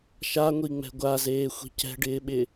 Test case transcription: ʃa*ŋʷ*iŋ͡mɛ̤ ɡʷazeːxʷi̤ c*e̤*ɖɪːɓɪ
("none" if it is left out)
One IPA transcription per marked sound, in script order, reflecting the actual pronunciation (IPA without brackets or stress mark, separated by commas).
ŋʷ, ɛ̤